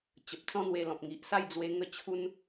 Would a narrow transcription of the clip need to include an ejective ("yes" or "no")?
no